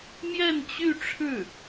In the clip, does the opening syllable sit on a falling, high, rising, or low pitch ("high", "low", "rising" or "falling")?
falling